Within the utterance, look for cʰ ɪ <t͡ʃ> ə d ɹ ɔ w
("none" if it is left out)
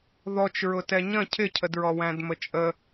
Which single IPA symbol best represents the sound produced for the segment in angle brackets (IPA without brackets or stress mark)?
cʰ